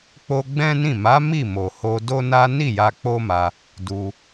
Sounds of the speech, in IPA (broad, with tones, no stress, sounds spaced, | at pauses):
k͡p o˧ ɡ͡b ɛ̃˦ n ĩ˦˨ m a˨˦ m i˦˨ m o˨ h o˧ d o˦ n a˦ n i˦˨ j a˧ k͡p o˦ m a˧ | d u˧